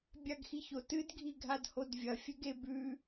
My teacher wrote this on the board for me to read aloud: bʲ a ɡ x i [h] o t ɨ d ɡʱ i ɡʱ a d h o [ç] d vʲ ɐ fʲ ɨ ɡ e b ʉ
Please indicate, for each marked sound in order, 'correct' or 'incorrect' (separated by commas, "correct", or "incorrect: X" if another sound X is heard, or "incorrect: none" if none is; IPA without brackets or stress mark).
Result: incorrect: ç, incorrect: none